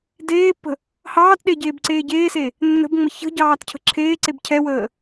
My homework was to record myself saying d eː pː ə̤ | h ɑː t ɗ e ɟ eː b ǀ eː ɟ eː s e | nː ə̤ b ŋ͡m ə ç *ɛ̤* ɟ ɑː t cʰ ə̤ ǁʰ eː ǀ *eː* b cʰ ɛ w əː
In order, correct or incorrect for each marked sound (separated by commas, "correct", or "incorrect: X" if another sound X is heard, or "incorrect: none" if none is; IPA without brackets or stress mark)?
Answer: incorrect: ə̤, incorrect: e